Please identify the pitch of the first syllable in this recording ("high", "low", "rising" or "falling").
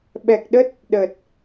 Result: low